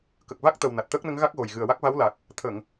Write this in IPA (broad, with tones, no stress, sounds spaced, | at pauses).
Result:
k ə˨˩ k̚ v a˦˥ k̚ t̪ ə˨˩ w n a˨˩ t̚ t̪ əː˦˥ k̚ n ə˧˥ ŋ ɣ a˦˥ k̚ ɣ o˨˩ j ɣ ɨ˨˩ ə̯ w a˦˥ k̚ v a˧˥ w l a˨˩ k̚ | t̪ʰ ə˨˩˨ ŋ